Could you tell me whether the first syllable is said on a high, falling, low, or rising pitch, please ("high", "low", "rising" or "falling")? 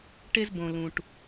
high